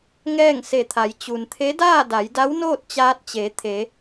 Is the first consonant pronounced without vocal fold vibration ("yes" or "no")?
no